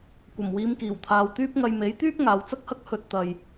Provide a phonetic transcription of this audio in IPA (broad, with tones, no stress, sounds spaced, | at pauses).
kʷ ɐ˨˩ m w iː˨˧ m k iː˨˩ w t̪ʰ aː˨ w t̪ yː˥ p̚ ŋ ɐ˧ j m e˨˥ j t̪ yː˥ p̚ ŋ aː˨˧ w t͡s ɐ˥ k̚ h ɐ˥ k̚ h ɵ˧ t̚ t̪ ɐ˨ j